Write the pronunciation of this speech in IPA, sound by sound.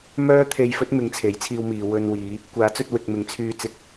m œː˥ t̪ʰ e˧ j f ɵ˥ t̚ m ɪ˨˧ ŋ t͡sʰ e˨˥ j t͡sʰ iː˧ w m iː˨ w ɵ˧ n w iː˨˧ | kʷ aː˨˥ t͡s ɵ˧ t̚ w ɪ˨ k̚ m ɪ˨˥ ŋ t͡sʰ yː˧ t͡s ɪ˨˥ k̚

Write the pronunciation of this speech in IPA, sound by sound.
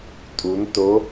tʼ u n t o

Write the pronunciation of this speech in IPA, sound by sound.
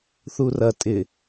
θ u r ɐ tʼ ɪ

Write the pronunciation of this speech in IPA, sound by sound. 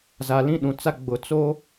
z a˨ l ĩ˦ ɗ ũ˨ t͡s a˦ ɡ͡b ʊ˨ t͡s o˦

